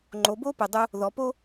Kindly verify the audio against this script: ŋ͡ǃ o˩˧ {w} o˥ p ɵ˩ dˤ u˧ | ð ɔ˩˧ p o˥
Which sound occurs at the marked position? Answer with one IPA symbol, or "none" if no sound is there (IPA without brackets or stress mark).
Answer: b